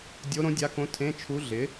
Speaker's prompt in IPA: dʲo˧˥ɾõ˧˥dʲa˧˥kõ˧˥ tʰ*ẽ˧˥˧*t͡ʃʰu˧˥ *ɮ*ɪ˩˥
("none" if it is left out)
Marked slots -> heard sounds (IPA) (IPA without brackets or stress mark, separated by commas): ẽ˧˥˧, ɮ